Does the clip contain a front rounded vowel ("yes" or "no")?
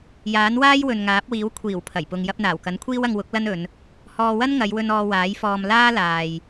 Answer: no